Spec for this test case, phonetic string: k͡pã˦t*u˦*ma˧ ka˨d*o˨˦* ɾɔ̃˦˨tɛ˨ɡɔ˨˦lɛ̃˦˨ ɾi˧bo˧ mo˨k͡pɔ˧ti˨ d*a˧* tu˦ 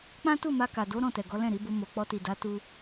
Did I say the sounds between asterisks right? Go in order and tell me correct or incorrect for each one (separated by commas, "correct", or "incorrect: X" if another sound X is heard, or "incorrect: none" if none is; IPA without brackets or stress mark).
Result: incorrect: u˦˨, correct, incorrect: a˨˦